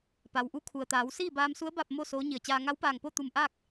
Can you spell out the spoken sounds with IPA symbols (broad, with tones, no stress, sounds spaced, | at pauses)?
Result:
p a˩ w ʔ u˧˥ kʰ u˩ ə̯ t̪ aː˩˧ w s iː˥˨ b aː˧ m s u˧˥ ə̯ b a˥˨ p̚ m o˥˨ s oː˧˥ ɲ i˧˩ ə̯ t͡ɕ aː˧ ŋ a˧˥ w p aː˧˩ ŋ p o˥˨ t̪ u˧˩ m ʔ aː˥˨ k̚